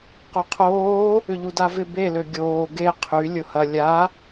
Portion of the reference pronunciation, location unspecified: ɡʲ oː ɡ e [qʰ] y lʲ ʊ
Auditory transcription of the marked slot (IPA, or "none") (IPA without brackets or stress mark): qʰ